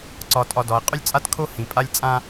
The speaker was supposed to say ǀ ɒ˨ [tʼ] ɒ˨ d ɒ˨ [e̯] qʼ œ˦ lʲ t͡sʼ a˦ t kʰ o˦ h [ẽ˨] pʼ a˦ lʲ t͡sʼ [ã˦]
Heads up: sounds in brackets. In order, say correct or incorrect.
correct, correct, incorrect: ĩ˨, correct

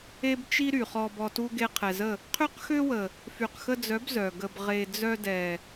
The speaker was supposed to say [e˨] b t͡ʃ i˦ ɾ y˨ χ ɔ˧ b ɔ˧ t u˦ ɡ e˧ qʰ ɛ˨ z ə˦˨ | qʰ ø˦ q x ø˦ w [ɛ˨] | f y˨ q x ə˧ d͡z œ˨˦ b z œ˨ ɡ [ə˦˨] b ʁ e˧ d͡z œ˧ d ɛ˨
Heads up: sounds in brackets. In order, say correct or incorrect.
incorrect: e˦, incorrect: ə˨, incorrect: ə˧

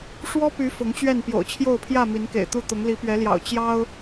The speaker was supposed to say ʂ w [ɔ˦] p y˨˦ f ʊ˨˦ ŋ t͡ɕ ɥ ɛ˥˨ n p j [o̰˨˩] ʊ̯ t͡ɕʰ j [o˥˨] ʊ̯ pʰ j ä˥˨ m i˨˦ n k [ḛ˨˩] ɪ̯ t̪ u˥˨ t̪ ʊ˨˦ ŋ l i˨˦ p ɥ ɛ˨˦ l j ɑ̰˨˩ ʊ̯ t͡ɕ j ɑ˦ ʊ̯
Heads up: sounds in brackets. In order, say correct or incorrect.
correct, correct, correct, correct

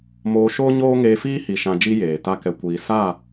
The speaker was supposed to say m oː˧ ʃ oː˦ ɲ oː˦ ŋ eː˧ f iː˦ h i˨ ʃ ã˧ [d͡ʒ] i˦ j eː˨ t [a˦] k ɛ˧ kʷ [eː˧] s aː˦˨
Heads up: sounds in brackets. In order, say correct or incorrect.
correct, correct, incorrect: iː˧

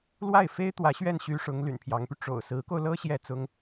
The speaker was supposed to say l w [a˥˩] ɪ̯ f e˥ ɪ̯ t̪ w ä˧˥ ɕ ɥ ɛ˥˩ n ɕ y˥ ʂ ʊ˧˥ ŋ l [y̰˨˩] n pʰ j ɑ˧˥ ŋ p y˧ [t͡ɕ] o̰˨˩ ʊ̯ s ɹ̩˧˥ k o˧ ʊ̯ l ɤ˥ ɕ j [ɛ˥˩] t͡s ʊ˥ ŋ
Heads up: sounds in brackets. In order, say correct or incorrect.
correct, correct, incorrect: ʈ͡ʂ, correct

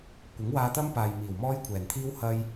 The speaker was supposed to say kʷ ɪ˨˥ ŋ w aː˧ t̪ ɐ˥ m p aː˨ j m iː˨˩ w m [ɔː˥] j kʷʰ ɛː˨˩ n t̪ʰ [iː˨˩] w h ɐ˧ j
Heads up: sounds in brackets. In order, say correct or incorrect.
correct, incorrect: iː˥

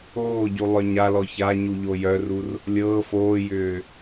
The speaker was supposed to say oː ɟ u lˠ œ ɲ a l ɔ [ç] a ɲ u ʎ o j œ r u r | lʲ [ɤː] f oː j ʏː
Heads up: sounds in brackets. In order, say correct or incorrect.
correct, correct

